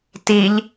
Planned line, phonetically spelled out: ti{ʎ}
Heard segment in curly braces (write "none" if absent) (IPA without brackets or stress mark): ʎ